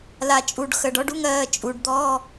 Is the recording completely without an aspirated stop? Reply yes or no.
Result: yes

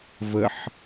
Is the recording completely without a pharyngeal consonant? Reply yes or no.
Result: no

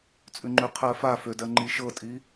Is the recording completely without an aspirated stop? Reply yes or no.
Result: no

